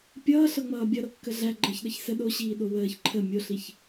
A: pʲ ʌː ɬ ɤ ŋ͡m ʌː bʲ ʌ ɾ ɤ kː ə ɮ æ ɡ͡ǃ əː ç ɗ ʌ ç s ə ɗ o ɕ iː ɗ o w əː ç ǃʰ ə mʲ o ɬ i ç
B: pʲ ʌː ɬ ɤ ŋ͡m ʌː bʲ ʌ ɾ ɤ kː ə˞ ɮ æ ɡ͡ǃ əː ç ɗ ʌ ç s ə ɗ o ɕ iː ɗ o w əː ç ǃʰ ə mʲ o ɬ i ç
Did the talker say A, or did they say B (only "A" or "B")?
A